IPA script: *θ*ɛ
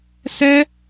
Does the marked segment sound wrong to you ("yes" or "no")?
yes